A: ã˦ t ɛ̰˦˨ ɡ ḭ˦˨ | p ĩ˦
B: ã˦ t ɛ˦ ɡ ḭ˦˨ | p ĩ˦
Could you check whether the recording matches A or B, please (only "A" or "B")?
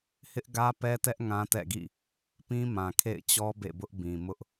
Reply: A